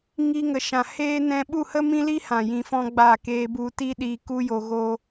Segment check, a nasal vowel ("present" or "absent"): present